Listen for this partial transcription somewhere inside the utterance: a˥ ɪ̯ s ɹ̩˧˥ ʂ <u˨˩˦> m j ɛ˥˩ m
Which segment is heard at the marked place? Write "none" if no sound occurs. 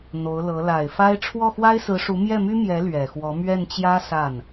u˧˥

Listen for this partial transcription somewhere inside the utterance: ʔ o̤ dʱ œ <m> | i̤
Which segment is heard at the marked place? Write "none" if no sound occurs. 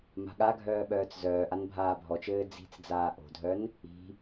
n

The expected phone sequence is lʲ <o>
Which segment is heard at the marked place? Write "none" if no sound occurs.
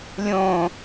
õ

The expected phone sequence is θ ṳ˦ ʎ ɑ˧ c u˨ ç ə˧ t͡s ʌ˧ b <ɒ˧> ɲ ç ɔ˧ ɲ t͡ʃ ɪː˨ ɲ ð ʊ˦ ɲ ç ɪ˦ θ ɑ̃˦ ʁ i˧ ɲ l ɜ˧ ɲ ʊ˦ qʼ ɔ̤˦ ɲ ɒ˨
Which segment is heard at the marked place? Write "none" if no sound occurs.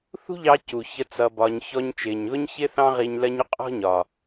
ɒ˧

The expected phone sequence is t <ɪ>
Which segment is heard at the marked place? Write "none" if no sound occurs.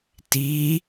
i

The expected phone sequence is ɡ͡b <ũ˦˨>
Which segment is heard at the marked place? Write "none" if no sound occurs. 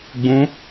ũ˨˦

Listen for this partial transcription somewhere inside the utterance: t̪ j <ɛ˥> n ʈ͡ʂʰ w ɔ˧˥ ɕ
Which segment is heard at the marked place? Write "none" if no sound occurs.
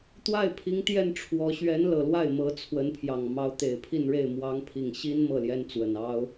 ɛ˥˩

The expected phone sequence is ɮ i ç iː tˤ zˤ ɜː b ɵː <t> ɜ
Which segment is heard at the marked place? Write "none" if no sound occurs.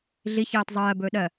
ɗ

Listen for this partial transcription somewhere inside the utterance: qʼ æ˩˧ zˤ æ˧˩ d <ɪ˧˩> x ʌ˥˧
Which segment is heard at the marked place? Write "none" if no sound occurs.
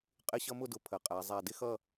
ɪ˥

